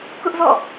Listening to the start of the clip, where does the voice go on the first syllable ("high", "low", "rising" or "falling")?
high